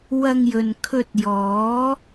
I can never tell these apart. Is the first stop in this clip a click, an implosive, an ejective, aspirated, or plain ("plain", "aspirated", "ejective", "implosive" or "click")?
aspirated